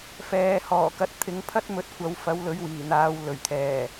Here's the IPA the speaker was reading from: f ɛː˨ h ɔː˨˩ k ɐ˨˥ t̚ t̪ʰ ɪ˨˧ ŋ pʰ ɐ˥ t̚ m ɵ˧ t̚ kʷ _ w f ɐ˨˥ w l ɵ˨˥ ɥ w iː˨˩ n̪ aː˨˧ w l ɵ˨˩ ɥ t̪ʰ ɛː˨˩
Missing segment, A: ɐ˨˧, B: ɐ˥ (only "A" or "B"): A